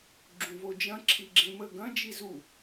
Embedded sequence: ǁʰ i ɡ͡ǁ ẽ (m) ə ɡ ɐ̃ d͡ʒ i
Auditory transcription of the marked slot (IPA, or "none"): m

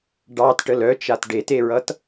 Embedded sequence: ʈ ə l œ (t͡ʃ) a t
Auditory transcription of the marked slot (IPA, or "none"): t͡ʃ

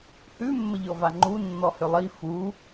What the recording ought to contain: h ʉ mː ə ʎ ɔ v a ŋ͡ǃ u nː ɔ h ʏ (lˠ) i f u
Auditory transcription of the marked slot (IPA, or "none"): lˠ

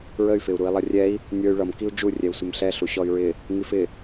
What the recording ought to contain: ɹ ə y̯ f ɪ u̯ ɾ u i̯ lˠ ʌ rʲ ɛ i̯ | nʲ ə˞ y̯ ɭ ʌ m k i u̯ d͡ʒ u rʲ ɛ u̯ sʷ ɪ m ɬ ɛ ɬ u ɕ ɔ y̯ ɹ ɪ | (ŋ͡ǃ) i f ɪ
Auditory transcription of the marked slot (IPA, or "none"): ŋ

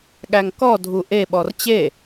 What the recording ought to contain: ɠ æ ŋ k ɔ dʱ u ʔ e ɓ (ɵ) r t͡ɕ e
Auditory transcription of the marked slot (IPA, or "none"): ɔ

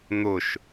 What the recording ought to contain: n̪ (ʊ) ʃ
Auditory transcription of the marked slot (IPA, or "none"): ʊ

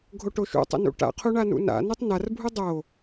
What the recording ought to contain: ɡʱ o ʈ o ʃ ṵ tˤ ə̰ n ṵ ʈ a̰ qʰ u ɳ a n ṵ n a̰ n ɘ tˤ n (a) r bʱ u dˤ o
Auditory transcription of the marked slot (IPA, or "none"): a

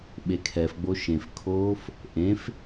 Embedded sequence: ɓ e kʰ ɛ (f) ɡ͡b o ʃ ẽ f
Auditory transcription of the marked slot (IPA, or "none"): f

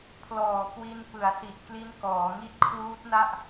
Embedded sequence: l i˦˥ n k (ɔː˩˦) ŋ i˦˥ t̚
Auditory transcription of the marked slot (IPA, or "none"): ɔː˩˦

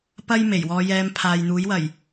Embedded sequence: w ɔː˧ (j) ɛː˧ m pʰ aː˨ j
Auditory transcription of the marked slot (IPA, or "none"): j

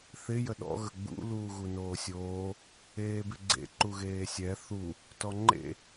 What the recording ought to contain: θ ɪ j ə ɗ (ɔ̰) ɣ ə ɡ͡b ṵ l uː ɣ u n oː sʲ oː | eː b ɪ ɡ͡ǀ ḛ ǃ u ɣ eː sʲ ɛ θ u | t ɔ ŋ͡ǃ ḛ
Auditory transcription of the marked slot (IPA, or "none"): ɔ̰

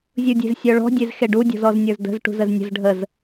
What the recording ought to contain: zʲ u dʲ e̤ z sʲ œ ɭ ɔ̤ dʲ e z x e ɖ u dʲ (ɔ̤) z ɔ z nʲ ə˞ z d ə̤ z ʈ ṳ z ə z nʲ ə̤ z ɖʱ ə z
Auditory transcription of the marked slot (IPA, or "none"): ɔ̤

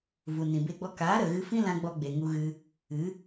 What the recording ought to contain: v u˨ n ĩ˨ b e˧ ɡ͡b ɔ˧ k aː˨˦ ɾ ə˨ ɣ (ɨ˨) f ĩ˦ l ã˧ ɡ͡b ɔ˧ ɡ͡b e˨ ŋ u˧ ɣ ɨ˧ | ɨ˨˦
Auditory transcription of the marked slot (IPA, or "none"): ɨ˧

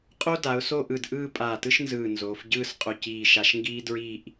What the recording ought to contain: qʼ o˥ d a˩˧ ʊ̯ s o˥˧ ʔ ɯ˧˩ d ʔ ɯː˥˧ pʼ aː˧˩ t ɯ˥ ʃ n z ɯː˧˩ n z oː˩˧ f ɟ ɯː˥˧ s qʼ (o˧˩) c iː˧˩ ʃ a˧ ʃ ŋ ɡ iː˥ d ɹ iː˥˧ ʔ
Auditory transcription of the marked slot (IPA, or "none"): o˧˩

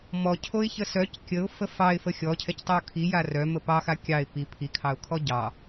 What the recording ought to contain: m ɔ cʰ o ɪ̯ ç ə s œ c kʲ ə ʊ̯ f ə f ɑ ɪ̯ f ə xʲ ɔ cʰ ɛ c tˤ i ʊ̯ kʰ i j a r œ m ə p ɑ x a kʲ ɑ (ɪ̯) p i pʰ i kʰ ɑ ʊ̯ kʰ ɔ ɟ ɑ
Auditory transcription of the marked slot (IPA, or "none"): ɪ̯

